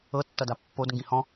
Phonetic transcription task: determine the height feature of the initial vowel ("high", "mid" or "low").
mid